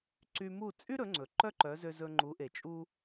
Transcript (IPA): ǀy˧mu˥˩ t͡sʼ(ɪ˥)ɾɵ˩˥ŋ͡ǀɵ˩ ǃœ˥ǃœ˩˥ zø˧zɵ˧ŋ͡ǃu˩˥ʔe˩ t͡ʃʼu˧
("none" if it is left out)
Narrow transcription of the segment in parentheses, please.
y˥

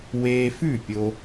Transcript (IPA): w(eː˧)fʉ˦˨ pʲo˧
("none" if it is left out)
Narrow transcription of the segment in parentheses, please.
eː˧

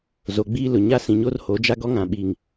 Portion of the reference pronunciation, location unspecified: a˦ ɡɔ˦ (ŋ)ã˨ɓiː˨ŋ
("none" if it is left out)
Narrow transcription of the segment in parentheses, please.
ŋ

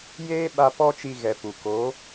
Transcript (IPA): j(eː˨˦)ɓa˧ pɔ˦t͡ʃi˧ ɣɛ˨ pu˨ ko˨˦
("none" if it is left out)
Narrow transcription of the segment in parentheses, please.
eː˦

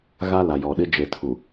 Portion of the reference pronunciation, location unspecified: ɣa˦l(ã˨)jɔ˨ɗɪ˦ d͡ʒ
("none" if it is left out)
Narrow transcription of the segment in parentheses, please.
a˨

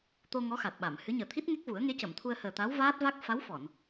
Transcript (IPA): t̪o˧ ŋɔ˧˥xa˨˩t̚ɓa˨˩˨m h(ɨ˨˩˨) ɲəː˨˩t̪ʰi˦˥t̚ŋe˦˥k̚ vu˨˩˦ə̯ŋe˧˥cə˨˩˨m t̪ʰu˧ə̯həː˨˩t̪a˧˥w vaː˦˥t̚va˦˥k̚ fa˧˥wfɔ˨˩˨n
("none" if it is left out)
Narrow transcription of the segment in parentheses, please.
ɨ˧˥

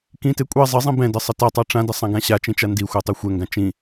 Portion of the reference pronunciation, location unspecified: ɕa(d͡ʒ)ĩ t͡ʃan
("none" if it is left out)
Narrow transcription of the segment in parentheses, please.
t͡ʃ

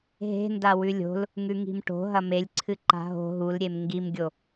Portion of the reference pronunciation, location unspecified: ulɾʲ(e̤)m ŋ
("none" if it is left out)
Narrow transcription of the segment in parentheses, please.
e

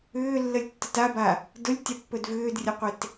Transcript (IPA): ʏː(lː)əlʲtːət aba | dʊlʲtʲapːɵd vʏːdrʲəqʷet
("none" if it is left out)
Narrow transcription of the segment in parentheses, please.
lː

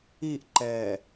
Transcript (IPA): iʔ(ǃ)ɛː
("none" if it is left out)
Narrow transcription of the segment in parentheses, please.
ǃ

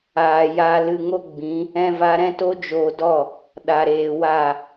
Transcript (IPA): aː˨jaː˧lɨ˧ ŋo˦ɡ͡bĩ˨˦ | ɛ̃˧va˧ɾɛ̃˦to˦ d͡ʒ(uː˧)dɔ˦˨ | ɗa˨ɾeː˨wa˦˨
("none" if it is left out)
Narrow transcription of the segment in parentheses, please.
oː˧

